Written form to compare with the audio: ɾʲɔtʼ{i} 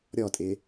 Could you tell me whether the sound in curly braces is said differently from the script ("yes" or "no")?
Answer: yes